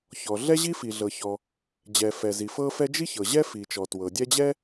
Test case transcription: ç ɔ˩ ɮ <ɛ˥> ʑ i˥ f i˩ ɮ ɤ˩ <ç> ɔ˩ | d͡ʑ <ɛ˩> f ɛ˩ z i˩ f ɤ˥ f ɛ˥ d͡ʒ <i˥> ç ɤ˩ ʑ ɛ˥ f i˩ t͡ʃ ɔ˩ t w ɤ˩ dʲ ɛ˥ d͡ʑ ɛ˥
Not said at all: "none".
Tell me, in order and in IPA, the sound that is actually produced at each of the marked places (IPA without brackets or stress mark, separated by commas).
ɛ˥, ç, ɛ˩, i˥